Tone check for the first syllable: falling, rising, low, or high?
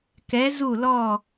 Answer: rising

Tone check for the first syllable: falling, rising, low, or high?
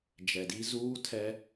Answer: low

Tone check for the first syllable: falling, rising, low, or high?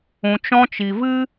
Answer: low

